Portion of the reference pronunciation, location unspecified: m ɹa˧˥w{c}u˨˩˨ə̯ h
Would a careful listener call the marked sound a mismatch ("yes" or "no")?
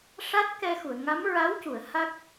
no